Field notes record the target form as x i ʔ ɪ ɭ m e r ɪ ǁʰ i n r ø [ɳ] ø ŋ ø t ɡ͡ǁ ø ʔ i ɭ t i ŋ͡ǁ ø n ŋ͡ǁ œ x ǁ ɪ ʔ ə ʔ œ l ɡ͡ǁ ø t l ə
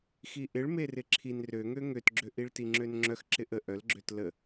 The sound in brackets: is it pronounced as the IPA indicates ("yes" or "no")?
no